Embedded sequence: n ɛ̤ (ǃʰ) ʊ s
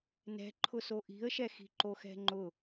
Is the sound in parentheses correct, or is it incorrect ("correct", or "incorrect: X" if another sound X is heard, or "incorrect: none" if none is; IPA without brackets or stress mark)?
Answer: correct